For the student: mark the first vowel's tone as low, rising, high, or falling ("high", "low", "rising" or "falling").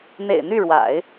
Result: low